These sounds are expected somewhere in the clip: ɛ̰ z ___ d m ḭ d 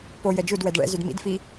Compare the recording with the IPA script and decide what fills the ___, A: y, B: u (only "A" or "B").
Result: A